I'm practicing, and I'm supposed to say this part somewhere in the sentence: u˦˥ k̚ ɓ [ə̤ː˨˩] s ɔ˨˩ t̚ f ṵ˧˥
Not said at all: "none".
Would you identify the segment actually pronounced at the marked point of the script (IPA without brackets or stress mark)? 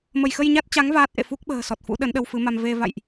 ə̤ː˨˩